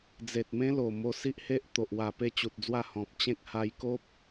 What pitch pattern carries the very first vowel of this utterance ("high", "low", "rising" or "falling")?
low